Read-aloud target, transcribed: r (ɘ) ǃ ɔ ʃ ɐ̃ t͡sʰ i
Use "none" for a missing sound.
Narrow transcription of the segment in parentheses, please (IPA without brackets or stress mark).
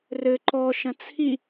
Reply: ɘ